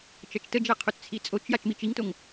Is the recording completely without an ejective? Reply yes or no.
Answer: no